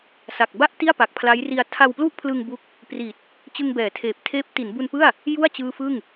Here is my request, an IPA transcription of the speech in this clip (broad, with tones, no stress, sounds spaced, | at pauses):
s a˨˩ k̚ b a˥˩ ʔ t i˥˩ a̯ p a˨˩ k̚ pʰ l a˦˥ j r i˧ a̯ tʰ a˧ w p l u˥˩ ʔ pʰ l ɯ˧ ŋ b u˦˥ k̚ | p r i˨˩ t̚ | t͡ɕ ɯ˧ ŋ b ɛː˩˦ tʰ eː˨˩ p̚ tʰ eː˦˥ p̚ t i˩˦ n b u˧ n p ɯ˥˩ a̯ | j u˥˩ a̯ t͡ɕ ɯː˦˥ f ɯ˥˩ ŋ